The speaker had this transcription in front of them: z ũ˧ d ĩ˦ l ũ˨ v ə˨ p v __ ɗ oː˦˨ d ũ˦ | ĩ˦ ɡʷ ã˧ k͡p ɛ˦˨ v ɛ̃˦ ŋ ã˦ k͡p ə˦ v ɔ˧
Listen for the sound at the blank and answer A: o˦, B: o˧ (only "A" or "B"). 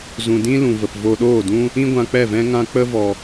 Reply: B